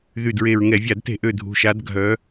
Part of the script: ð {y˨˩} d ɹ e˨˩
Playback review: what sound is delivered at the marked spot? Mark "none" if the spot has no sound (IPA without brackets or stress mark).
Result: y˨˩